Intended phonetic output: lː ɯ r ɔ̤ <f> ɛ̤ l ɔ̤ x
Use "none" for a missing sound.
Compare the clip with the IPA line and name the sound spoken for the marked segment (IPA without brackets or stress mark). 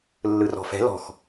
f